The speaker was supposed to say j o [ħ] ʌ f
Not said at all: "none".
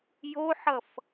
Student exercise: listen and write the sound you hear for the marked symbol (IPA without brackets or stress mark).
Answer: ħ